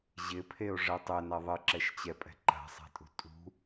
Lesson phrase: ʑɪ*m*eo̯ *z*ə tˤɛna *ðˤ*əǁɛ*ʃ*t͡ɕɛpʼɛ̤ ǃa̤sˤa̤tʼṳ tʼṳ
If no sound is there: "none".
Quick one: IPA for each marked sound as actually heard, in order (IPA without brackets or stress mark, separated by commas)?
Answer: pʰ, ʐ, ðˤ, ʃ